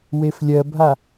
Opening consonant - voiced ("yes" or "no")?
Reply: yes